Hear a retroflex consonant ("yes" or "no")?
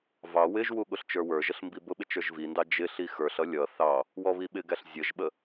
no